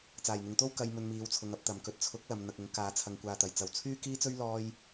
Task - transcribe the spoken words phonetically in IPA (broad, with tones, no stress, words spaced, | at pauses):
t͡saː˨˩jn̪ɪ˨ŋt̪o˥w kɐ˧j mɵ˧nmiː˨˧wt͡sʰʊ˨˧ŋɐ˧p̚ t̪ɐ˨˩mkɵ˨t̚t͡sʰʊ˨˥k̚lɐ˨m n̪ɐ˨k̚ʊ˨˥ŋkaː˨˥t͡sʰɐ˨ŋ kʷaː˨t̪ɐ˨˩jt͡sɐ˨w t͡sʰyː˥kiː˥t͡sɵ˥ɥ lɔː˥j